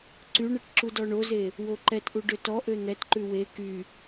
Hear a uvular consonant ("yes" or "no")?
no